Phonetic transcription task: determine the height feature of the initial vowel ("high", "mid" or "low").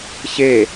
mid